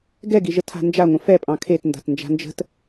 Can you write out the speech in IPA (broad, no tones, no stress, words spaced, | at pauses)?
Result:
ɡɛɡiʒə tʰa̤nd͡ʒaŋʷə̃ fɛpʼɑ̃ kʰet nda̤tnd͡ʒa̤nd͡ʒə̤t